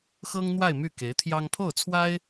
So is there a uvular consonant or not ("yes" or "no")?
no